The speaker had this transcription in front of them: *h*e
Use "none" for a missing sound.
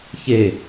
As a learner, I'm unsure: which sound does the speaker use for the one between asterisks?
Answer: ç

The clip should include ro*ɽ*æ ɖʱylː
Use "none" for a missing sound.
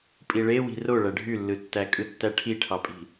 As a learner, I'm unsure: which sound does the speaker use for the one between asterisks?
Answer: ɭ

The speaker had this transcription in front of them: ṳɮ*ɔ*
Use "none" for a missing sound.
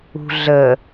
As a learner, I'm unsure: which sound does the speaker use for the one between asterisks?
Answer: ə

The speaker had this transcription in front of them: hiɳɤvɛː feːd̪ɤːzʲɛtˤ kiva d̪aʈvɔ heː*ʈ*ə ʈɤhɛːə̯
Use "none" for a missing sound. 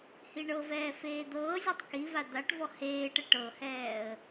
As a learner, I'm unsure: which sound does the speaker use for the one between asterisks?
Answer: ʈ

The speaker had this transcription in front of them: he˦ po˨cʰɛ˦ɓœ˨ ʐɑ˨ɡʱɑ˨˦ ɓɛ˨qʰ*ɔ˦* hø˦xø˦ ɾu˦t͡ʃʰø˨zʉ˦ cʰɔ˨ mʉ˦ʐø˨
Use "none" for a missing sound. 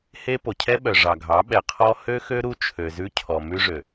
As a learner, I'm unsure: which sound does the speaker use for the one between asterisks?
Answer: ɔ˦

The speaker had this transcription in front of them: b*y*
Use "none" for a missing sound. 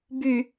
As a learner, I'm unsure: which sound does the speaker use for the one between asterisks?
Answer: y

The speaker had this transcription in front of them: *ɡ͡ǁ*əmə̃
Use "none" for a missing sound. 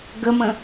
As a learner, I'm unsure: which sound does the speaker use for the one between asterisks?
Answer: ɡ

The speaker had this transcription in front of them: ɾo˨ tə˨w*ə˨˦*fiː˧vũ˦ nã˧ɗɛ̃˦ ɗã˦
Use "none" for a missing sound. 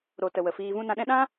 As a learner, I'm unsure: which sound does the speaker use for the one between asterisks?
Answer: ə˨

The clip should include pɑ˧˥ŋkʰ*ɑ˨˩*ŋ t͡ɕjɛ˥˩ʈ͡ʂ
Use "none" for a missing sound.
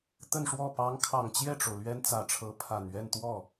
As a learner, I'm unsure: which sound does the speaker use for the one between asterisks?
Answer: ɑ˨˩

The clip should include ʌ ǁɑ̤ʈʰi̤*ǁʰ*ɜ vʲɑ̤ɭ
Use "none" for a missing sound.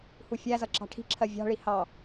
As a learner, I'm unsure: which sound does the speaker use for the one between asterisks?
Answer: ǁʰ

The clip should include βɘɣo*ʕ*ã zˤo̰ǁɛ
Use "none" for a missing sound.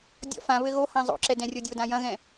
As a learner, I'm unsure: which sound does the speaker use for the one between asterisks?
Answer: h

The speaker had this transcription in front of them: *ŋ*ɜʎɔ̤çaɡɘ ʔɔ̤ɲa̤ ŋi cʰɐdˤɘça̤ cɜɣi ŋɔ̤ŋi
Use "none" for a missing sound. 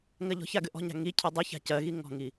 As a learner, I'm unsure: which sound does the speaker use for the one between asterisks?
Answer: ŋ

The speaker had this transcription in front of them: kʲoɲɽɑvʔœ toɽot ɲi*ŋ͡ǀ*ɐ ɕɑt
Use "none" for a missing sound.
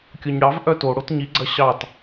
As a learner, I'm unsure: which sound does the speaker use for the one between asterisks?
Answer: ɡ͡ǀ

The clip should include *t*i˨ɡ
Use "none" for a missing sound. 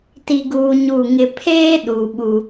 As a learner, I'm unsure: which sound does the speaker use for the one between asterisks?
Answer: t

